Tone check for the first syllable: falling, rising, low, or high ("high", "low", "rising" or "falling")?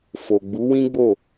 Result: low